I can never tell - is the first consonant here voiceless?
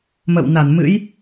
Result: no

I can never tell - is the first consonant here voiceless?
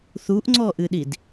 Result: yes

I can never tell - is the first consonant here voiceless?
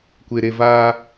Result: yes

